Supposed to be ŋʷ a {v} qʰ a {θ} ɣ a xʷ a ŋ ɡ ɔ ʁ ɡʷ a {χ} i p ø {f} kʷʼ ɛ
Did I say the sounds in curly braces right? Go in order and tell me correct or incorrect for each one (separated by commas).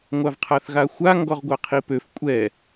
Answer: correct, correct, incorrect, correct